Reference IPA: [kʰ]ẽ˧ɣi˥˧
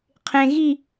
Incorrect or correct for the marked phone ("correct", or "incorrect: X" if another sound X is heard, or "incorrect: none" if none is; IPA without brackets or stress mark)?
incorrect: qʰ